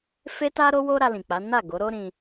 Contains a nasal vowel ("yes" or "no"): yes